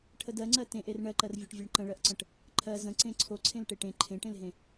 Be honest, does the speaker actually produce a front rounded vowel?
no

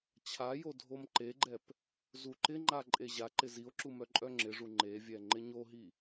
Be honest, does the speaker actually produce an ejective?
yes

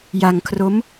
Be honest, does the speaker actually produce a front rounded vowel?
no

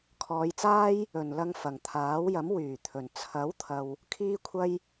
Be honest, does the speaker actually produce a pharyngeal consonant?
no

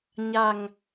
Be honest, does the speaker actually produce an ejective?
no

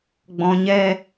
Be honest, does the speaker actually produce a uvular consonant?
no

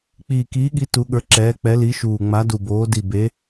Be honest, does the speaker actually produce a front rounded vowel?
no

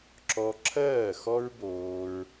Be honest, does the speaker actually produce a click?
yes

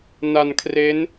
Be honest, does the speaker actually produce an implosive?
no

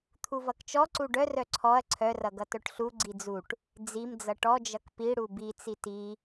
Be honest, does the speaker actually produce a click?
yes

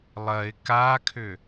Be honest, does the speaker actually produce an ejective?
no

